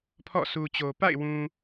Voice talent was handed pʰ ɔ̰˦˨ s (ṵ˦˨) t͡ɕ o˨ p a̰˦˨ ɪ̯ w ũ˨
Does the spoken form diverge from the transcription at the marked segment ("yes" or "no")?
yes